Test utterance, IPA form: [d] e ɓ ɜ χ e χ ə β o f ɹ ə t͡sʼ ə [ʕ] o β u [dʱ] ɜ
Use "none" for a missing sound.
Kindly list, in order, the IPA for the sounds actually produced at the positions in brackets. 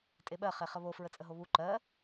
tʼ, ɦ, ǃ

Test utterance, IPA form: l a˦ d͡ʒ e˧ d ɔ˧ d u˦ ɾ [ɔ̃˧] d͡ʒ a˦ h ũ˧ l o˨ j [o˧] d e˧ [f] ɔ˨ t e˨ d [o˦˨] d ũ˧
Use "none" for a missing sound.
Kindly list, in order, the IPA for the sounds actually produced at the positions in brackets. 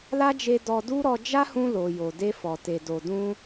ɔ˧, o˨, f, o˨

